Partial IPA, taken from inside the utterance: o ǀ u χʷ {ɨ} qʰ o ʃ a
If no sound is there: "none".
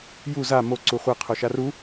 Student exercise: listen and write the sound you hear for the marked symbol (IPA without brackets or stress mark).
e